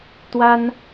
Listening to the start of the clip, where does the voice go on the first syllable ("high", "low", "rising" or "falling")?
high